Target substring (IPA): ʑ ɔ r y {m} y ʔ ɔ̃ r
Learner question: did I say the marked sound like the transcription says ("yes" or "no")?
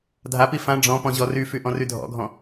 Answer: no